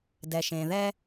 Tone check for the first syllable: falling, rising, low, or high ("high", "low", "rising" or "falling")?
low